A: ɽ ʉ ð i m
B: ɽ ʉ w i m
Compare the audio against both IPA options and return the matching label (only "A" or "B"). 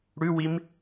B